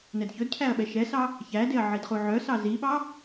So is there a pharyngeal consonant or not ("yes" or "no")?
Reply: yes